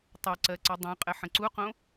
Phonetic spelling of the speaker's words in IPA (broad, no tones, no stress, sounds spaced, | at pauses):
tˤ ʌ ǀ ɜ ǀ ɛ dˤ õ qʼ ɘ ħ ə̃ ǀ u q õ